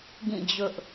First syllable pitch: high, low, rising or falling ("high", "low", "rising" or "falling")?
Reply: falling